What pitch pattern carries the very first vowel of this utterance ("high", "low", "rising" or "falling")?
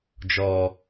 low